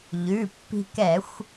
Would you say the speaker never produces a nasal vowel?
yes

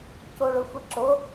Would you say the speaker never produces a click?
no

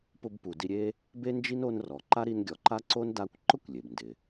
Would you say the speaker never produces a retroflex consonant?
yes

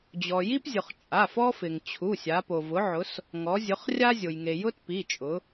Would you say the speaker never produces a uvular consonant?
no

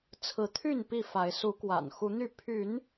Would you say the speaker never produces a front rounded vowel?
no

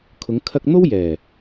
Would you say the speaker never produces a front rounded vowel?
yes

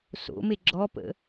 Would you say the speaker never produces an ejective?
yes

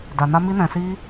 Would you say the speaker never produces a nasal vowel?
no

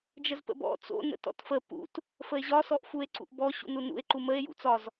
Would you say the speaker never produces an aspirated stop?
yes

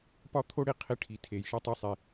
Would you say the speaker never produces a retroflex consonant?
no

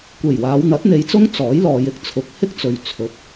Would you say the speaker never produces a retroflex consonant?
yes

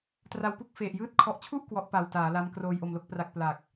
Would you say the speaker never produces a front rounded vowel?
yes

